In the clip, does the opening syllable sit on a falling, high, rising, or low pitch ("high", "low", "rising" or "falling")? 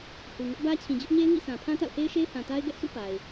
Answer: low